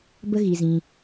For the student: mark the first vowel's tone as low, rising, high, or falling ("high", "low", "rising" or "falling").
high